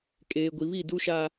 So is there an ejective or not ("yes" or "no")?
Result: yes